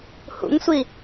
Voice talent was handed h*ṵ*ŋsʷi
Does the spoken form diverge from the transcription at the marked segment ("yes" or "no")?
no